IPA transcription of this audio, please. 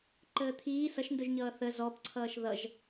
ǃəːt̪ʰiː sʌʃndʊʒɲʌː θə zɔpǀʰʌːʃ ðʌʒ

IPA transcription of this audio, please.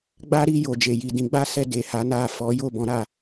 ɡ͡ba˦ɾi˧ jo˨d͡ʒe˨ ji˨dĩ˨˦ɡ͡ba˦sɛ˧ de˨ha˨˦na˦˨ fɔ˨˦jo˦˨bɔ̃˨˦ɾa˦˨

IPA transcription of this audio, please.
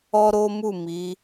ɔ˦ɾo˦mu˦˨ mi˨˦

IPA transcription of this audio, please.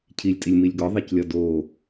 cʰilʲtʼilʲmilʲ ɡɔðˤiclʲɒ do

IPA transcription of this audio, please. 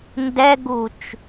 ndɛɡut͡ʃ

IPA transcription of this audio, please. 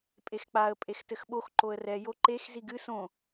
pʼexk͡paə̯ pʼextɘxɓox ǃoə̯rɛ joǃex ziɡɨ sõ

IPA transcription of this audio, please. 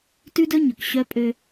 tʉ˦dɵ˦ ɲɵ˨kɕœ˦pʼø˦

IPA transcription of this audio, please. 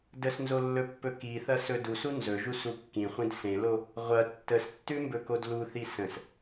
dəsnzolːɵpːɵ kiθɐsɵ dusu nzɵʒusu kːĩχʷĩd sẽlo | ʁʷɐ tːəstːʉmbɵkod luθi sə̃s

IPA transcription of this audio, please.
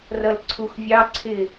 rʌlǀʰuxvʲɑǀʰɪ

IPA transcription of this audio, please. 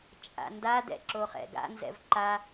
t͡ʃʼa̰ndadɛ̰ ǁoχɛ̰ɡa̰nzɛ̰v ǃa

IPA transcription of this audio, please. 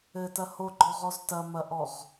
ɘtɐ hoɡ͡ǃɔʁɔz tɐmɐʔɔʁ

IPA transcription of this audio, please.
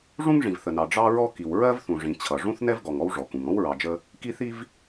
ʐũ˥ŋʐĩ˩vθə˩nɑ˩ ɖ͡ʐɑ˥ɹɔ˥ ki˩w ɹɜ˥vθũ˩ʐĩ˩ t͡ɕʰʌ˩ ʐũ˥θnɛ˥vɡɔ˩ŋ ɔ˥wʐɔ˩kũ˩ŋ ɔ̃˥wɹɑ˩ d͡ʒə˥ | ki˥θi˥v

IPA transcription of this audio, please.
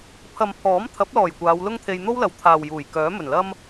pʰɐ˨mpʰɔː˨˥m t̪ʰɐ˨˥p̚lɔː˨˩j kʷaː˨˧wlʊ˥ŋt̪ʰe˧j n̪o˥wlɐ˨wt̪ʰaː˨wjuː˨˩j kœː˨˥mɵ˨˩nlɐ˥m

